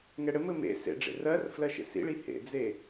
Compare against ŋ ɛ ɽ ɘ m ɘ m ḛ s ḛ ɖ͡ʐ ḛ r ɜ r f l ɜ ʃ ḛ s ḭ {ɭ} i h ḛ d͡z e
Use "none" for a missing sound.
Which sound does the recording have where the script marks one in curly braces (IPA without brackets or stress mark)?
ɭ